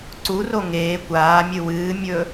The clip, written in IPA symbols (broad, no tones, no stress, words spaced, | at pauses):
ǀuro ŋeː kʷaːmʲɨ wɨːmʲɵ